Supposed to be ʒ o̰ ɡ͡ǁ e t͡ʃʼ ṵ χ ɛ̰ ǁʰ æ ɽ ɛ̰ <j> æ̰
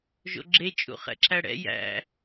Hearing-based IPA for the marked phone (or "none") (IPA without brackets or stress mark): j